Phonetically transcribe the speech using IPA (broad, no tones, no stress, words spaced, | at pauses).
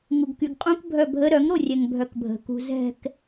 ŋuɡkyɡqʼũk bʱœbʱə ɾœŋ ɾorʲɛŋbʱœkbʱə̤ kṳzɛ̤k